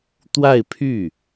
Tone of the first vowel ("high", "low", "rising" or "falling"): falling